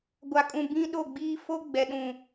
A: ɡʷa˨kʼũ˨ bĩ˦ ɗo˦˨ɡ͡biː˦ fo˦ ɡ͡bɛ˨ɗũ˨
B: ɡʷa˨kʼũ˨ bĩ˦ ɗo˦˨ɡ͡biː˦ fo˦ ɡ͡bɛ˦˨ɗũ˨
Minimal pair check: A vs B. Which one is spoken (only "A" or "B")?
A